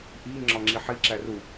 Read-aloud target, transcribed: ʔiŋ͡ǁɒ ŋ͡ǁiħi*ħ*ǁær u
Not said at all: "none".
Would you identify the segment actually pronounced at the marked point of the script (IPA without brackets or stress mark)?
none